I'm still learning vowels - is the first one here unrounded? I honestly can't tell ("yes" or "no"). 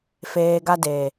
yes